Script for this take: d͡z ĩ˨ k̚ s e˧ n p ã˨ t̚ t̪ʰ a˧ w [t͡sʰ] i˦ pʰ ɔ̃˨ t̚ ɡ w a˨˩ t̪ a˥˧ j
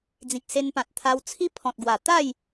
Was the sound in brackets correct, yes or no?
yes